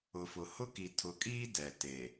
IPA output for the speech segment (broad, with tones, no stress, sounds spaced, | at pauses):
ʊ˨ f ʊ˨ h ʊ˦ k i˨ tʰ ʊ˨ kʼ iː˦ d ɛ˨ t e˨